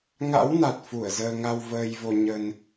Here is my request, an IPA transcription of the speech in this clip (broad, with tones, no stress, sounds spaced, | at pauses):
ŋ a̰˧˥ w n a˨˩ t̚ f u˧˩ ə̯ z əː˧ ŋ a˧ w v əː˧ j v o˧ ɲ ə˧ n